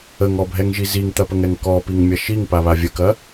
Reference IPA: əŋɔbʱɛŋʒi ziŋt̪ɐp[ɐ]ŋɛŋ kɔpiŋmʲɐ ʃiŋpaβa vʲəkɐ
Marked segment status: incorrect: ə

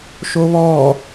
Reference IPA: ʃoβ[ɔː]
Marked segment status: correct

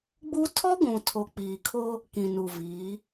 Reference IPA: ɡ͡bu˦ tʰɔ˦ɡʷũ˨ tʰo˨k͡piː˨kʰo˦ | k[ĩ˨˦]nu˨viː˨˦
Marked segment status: incorrect: ĩ˨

